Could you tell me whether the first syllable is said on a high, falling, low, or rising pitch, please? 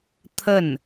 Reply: falling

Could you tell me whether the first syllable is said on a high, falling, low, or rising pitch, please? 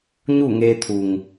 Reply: falling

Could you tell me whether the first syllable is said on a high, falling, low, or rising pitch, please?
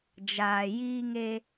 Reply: low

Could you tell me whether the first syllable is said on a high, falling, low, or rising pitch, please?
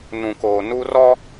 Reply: low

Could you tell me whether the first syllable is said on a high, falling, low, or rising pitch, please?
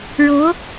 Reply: rising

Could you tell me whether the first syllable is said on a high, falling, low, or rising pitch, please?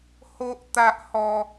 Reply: high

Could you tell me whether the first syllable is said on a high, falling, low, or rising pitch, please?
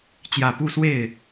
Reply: low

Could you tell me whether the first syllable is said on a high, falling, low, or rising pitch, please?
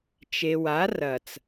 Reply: low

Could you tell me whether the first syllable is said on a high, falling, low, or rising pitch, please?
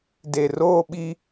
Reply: low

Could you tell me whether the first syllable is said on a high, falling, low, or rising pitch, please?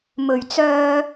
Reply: low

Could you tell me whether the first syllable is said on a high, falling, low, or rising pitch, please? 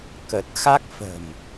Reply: low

